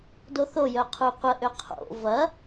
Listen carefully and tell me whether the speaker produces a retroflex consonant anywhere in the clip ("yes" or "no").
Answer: no